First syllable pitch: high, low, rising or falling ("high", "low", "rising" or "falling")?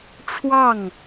falling